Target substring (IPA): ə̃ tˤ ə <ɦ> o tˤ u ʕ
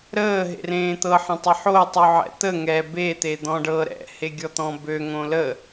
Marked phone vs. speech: incorrect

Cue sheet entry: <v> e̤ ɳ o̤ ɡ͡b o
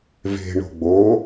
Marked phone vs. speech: correct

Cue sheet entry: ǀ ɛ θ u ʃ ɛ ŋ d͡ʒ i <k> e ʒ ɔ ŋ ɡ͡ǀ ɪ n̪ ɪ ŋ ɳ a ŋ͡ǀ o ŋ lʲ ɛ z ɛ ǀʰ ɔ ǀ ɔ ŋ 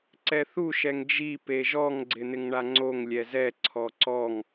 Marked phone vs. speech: incorrect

